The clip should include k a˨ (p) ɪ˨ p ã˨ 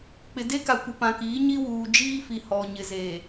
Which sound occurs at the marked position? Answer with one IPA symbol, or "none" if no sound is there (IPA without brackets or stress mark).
kʷ